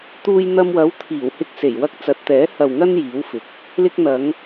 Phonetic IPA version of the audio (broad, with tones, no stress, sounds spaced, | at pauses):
t̪ uː˧ j n̪ ɐ˧ m w ɐ˨˥ w t̪ʰ iː˨˩ w h ɪ˧ k̚ s e˨˩ j w ɐ˧ k̚ t͡s ɐ˨˥ t̚ t̪ ɛː˨˥ h ɐ˨ w ŋ ɐ˧ n j iː˨˥ w f ɪ˨˥ k̚ | l ɪ˧ k̚ n̪ ɐ˨˧ ŋ